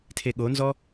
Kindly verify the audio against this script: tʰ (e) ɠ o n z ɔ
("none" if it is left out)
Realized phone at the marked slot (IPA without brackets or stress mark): e